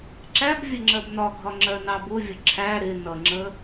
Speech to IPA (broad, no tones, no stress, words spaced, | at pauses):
ǁæb vʲəŋ͡ǁɜbnɒɡʱɒ ŋ͡ǁɜnɑbʊvʲʊ ǁʰæ ɾɪ nʌŋ͡ǁə